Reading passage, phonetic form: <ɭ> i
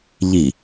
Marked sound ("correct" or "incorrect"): incorrect